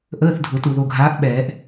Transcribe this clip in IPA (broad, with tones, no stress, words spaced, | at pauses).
ʔəː˧˥˧θdʱʊ˨˩˦tu˨ ðo˨ɡʱaː˨˦ʔ ɓɛː˨˩˦ʔ